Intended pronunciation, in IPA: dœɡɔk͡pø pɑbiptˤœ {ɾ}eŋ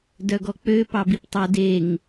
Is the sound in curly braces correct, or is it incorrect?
incorrect